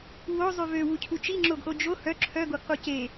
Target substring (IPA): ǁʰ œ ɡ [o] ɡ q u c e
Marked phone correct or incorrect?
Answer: correct